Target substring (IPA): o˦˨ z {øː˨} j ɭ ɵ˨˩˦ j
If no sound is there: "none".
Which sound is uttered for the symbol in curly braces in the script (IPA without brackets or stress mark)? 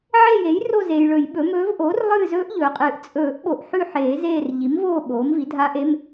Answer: eː˨